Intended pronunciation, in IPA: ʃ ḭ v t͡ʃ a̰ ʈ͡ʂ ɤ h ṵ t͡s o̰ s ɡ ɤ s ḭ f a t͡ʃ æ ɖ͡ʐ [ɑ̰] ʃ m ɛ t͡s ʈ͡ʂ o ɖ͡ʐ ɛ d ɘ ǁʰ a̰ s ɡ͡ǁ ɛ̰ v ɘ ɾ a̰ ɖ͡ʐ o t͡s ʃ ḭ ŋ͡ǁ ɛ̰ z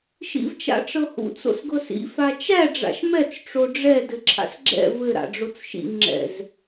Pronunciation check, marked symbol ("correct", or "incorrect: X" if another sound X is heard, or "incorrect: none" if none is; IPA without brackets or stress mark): incorrect: a̰